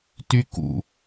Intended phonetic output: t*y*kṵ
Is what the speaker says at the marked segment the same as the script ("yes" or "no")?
yes